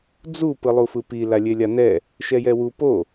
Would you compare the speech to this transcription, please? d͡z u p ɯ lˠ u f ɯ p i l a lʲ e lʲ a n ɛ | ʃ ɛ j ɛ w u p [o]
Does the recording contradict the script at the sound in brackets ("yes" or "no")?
no